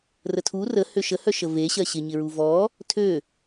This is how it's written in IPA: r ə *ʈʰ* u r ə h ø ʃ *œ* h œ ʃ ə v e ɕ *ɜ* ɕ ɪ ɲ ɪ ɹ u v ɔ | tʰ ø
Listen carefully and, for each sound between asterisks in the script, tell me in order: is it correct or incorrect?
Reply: incorrect, incorrect, correct

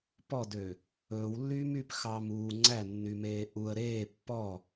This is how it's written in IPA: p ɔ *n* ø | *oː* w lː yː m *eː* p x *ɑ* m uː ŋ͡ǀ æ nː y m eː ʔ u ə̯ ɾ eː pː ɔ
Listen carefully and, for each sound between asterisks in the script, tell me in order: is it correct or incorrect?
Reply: incorrect, incorrect, incorrect, correct

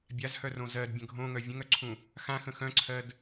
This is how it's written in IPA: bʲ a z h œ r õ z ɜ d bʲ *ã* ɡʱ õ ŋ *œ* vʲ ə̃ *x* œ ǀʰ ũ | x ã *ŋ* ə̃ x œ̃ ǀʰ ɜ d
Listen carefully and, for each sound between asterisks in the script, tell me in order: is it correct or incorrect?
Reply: incorrect, correct, incorrect, incorrect

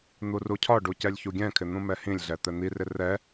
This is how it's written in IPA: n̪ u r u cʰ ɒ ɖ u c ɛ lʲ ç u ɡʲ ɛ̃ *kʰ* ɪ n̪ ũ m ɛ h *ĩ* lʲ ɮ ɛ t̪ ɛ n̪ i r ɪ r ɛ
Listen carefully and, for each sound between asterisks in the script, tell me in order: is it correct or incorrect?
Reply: correct, correct

